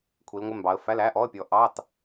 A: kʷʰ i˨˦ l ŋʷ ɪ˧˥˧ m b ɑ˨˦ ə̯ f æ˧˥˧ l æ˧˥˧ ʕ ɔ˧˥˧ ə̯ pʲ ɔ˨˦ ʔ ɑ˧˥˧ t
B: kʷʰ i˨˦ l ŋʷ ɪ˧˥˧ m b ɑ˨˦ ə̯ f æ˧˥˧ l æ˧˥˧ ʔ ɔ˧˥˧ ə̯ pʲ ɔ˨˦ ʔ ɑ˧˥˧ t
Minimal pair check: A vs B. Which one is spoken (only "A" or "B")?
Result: B